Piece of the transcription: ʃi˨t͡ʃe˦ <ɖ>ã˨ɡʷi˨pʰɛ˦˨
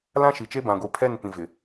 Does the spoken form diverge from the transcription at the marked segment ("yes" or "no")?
yes